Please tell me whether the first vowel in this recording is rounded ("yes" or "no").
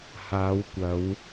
no